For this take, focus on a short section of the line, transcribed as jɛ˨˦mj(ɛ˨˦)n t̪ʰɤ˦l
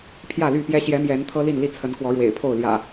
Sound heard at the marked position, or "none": ɛ˨˦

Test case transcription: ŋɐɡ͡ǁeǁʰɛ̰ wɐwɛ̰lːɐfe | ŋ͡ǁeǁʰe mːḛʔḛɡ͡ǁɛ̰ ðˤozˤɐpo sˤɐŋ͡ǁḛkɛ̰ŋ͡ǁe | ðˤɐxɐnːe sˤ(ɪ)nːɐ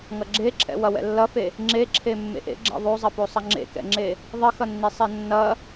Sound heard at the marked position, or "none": ɛ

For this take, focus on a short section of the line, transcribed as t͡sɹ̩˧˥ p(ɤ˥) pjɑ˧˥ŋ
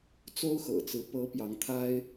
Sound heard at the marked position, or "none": ɤ˧˥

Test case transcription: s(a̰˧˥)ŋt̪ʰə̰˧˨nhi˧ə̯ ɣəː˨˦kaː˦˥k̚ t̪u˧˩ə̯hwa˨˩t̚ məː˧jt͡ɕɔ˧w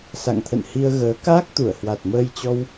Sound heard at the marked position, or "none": a̰˧˨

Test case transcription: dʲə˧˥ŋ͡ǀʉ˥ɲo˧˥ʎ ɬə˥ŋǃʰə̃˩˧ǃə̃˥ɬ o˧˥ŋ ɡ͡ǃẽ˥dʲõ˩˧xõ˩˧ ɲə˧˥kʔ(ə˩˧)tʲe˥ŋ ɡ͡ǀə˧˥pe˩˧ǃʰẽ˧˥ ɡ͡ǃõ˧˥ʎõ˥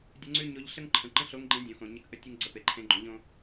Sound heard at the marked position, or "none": ə˥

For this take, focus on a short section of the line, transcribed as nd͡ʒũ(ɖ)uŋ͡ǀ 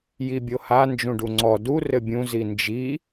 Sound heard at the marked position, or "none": ɖ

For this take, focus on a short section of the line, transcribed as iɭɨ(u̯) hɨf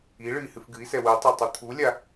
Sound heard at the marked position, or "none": i̯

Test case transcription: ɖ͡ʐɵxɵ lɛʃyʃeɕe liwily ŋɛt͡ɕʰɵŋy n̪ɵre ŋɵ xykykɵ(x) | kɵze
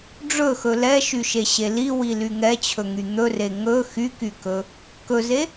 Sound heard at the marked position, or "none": none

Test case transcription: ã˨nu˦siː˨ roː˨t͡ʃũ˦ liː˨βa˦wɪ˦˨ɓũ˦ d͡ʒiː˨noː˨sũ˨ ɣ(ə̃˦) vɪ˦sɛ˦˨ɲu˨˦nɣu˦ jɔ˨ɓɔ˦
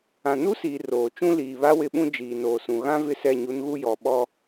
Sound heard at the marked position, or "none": ã˦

